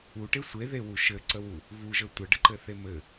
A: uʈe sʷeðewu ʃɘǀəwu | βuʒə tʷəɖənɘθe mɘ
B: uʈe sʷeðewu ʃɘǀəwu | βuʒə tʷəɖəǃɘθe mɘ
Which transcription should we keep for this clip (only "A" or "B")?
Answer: B